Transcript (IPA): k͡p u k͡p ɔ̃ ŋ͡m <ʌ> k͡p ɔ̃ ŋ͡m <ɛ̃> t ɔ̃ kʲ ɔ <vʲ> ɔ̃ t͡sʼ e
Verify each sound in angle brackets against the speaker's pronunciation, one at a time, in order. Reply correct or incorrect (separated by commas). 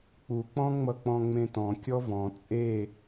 correct, incorrect, incorrect